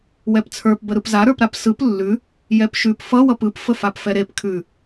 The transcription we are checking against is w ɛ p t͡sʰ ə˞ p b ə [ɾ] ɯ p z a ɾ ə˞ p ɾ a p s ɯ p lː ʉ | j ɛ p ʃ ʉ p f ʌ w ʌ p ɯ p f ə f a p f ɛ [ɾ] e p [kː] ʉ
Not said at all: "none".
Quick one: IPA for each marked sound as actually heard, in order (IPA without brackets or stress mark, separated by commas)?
ɾ, ɾ, kʰ